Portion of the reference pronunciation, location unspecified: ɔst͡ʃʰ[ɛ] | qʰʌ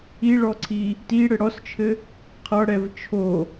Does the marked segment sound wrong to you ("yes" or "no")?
yes